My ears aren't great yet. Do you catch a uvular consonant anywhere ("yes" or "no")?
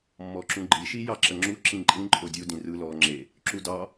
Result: no